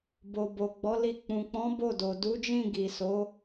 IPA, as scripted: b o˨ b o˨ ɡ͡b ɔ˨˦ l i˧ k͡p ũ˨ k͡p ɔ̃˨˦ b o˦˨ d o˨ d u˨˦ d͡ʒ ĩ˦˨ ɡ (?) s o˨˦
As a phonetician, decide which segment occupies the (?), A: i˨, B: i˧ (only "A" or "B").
A